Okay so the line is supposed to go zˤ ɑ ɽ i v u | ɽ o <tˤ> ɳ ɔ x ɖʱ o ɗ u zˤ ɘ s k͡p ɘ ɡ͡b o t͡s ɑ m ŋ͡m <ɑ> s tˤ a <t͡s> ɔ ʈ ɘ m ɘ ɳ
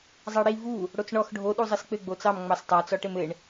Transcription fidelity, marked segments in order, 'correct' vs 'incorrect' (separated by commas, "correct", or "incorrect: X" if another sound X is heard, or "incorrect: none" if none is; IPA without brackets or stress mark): incorrect: t͡s, correct, correct